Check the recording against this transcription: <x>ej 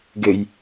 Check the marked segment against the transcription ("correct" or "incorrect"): incorrect